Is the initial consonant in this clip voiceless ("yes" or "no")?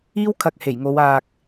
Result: no